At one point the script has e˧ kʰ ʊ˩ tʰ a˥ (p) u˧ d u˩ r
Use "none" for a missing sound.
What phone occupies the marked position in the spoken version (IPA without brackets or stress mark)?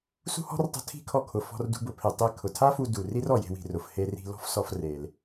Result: f